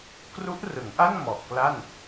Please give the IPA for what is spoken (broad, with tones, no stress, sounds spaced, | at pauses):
k r u˦˥ ʔ r ɯ˩˦ ŋ ʔ a˥˩ n m ɔ˨˩ ʔ k l a˥˩ n